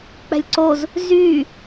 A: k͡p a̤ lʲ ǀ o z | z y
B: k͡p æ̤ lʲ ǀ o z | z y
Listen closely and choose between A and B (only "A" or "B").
B